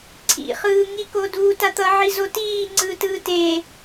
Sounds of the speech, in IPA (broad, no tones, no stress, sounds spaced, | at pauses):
ǀʰ ḭ χ ɯː ŋ i k o d uː t a t̪ ʌ ʕ i z o t iː ŋ͡ǀ ɯː t ɯː t e